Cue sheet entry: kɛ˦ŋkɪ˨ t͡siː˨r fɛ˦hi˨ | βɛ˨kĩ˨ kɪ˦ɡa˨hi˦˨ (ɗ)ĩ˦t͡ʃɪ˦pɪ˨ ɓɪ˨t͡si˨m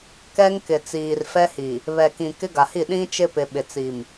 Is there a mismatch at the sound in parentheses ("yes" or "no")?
no